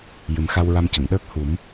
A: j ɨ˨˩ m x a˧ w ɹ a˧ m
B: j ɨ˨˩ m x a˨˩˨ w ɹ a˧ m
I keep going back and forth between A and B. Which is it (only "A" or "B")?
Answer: A